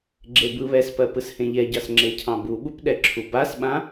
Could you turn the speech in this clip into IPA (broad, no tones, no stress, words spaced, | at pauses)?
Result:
ɡ͡ǁebɯβɛspɜ pɯshẽʎɛɟɑs ŋ͡ǁecʰɑ̃buɓup ɗɛǁʰubasɓã